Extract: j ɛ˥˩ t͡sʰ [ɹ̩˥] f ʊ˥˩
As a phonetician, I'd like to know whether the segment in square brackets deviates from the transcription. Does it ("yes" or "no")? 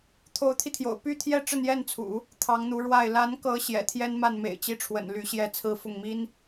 no